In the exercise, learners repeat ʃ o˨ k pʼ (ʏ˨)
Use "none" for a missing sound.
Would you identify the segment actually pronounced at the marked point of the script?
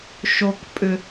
ʏ˨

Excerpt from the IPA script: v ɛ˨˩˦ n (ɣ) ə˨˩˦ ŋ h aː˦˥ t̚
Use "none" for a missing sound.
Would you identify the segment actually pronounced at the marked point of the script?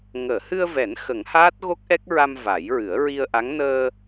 x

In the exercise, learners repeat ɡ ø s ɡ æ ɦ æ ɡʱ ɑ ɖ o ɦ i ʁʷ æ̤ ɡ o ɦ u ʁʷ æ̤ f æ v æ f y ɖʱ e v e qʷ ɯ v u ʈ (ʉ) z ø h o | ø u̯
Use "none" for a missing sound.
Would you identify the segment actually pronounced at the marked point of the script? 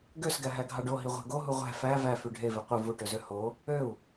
ø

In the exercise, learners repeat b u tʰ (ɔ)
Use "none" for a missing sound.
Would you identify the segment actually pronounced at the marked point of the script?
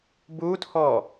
ɔ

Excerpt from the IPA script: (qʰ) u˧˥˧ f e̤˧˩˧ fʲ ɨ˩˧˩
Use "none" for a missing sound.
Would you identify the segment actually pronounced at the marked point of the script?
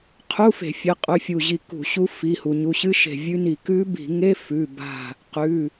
qʰ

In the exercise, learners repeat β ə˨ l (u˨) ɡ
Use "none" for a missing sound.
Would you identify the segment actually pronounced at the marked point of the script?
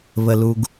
u˨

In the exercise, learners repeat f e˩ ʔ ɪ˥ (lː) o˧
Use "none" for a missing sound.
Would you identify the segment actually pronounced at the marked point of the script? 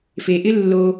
lː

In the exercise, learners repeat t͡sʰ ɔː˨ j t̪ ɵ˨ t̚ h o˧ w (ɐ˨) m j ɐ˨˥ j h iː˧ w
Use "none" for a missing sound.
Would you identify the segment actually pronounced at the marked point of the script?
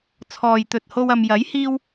ɐ˨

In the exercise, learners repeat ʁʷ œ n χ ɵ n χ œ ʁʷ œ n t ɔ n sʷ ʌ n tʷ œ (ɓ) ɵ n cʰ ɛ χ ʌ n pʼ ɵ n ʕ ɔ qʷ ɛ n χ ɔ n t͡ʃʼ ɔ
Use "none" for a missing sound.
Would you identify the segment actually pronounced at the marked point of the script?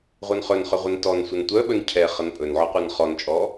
ɓ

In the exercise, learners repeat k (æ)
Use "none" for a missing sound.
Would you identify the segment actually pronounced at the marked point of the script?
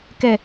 ɛ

